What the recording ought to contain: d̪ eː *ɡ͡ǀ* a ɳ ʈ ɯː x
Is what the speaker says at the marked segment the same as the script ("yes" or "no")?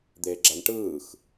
no